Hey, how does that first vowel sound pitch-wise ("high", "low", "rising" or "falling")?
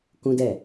high